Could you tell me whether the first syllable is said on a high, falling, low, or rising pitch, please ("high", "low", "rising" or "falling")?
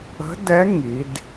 rising